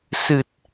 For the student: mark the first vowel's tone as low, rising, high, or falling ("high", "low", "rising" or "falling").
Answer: low